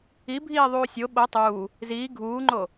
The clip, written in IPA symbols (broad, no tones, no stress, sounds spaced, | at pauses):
i bʱ iː ðˤ uː sʲ o ɓ o tˤ uː | z iː ɡʱ uː ŋ͡ǃ o